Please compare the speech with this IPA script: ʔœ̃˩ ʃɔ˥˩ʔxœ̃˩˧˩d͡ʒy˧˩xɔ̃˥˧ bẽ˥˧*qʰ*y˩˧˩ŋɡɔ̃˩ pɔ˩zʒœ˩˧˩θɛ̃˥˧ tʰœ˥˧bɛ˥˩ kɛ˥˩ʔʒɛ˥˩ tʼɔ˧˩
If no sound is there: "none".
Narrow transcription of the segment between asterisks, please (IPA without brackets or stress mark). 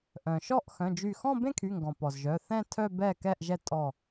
kʰ